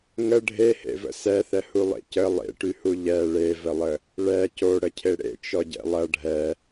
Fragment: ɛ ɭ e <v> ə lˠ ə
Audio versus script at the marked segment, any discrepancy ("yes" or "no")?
no